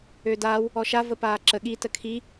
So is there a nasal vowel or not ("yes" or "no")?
no